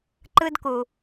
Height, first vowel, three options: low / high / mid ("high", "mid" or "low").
high